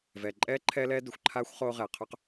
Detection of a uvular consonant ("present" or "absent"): present